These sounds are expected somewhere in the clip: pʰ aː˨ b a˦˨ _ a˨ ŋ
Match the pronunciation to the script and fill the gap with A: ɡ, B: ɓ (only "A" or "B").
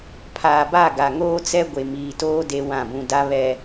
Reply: A